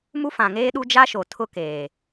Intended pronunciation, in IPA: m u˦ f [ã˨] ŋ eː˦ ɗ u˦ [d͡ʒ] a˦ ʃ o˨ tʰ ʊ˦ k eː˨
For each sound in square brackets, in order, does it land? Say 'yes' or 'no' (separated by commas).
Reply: yes, yes